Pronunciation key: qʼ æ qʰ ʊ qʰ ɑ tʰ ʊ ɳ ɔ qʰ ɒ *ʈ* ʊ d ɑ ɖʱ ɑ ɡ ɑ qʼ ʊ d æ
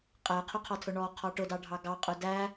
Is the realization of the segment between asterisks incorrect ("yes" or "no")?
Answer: no